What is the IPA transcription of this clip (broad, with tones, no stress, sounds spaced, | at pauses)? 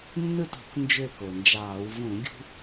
nː ɯ˥˨ t o̤˧˩˧ k n d͡ʒ ø˥˨ k o˩ n d͡ʒ ɑː˧˩˧ w v ũ˧˩˧ ɡʲ ṳ˦